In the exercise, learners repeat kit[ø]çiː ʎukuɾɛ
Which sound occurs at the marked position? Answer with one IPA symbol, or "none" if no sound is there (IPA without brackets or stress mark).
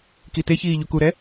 e